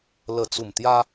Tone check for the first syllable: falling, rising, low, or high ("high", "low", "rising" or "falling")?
low